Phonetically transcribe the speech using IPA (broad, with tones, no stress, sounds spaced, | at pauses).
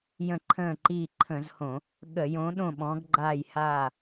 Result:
j ə̃˦˨ ǃʰ ə̃ː˦˨ ǃ iː˦˨ ǃʰ ə̃˧˩˧ z h õ˧˩˧ | ɠ ə˧˩˧ j õ˨˦ ɗ õ˦˨ ɓ ɔ̃˨˦ ɡ ɡ͡ǃ aː˦˨ j h aː˦˨